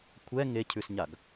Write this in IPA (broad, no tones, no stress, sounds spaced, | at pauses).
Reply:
kʷʰ ɛ ŋ e cʰ ʉ s ɲ a ɡ